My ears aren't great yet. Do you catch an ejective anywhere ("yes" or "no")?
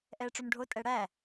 yes